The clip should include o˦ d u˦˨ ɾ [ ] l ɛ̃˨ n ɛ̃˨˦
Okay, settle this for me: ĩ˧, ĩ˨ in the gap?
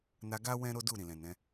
ĩ˨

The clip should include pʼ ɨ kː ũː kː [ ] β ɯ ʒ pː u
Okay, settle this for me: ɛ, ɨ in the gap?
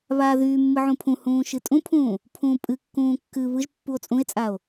ɨ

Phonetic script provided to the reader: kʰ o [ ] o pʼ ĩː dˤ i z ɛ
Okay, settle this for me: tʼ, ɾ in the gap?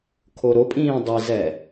ɾ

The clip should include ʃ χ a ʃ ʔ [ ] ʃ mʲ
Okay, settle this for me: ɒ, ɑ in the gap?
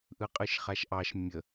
ɑ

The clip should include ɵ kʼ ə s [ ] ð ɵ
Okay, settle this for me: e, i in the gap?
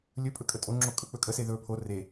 e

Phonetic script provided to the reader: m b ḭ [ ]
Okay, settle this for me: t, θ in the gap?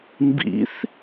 θ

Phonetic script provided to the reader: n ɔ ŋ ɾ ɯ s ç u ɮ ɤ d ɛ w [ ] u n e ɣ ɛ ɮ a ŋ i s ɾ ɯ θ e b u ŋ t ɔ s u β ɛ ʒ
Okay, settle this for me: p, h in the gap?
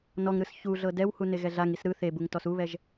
h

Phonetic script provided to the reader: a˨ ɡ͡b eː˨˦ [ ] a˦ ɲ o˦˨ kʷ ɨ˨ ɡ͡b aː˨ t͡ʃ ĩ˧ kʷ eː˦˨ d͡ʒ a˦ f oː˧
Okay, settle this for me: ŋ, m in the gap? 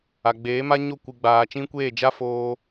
m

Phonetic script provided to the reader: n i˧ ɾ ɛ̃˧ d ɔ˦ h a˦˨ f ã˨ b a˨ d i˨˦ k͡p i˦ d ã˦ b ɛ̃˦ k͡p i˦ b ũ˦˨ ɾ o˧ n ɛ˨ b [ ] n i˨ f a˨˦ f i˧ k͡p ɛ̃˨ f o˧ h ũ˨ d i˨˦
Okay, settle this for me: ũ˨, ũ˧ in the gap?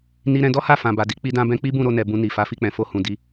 ũ˧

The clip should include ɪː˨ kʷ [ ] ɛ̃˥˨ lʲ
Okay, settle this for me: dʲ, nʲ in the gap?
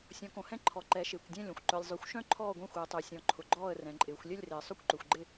dʲ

